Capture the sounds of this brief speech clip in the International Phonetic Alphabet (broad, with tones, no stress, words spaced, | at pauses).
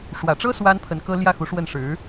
ʂwä˨˩ʈ͡ʂɤ˥ swa˥npʰə˧˥nkɤ˥ ljä˥˩xu˧˥ʂwə˥˩n ʂɻ̩˧˥